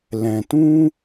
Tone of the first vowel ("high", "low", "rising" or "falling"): low